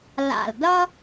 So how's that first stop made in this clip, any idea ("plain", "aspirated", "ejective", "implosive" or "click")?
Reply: plain